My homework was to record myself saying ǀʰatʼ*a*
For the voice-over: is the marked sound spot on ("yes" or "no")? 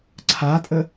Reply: no